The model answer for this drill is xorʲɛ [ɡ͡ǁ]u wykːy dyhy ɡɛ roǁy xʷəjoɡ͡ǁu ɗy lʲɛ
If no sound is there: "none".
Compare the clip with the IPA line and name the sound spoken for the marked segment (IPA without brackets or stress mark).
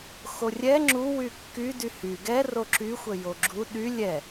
ŋ͡ǁ